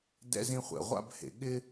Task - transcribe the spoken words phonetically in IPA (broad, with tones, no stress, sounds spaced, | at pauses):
d ɛ̰˥ z ĩ˥ χʷ ɛ̰˧ ʁʷ a̰˥ b h ḛ˧ ɠ ɪ˥